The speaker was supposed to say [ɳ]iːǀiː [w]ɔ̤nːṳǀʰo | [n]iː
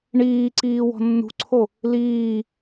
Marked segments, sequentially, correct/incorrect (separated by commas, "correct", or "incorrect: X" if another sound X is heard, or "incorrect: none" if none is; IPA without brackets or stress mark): correct, correct, incorrect: l